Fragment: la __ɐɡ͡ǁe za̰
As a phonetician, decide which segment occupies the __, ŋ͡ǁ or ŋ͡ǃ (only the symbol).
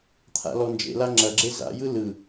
ŋ͡ǁ